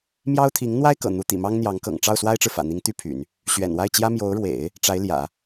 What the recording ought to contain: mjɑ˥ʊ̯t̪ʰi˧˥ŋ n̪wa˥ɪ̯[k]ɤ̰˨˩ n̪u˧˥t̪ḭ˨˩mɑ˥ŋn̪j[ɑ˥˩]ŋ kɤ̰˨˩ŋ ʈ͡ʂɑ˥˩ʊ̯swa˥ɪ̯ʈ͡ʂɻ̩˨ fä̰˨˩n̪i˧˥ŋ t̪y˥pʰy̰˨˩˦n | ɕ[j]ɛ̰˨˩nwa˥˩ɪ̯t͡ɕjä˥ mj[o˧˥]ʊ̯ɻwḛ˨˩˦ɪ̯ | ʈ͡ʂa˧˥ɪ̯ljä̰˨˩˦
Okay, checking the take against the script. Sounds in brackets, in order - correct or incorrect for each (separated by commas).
correct, incorrect, incorrect, correct